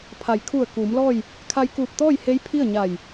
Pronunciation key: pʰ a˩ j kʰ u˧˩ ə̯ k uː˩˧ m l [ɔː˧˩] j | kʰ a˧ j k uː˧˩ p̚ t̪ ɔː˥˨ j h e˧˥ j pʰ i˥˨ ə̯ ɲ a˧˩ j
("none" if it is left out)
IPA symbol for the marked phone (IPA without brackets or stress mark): ɔː˥˨